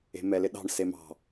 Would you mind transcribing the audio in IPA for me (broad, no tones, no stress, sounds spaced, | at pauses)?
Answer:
e̤ m ɛ l ɪ ɗ ɑ̤ ɳ s e m ɑ̤